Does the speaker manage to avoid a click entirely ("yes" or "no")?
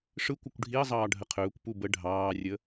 yes